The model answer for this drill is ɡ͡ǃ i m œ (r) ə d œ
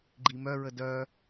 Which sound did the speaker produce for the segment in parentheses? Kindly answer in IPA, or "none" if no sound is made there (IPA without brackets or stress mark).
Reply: ɹ